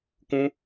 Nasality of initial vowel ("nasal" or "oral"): nasal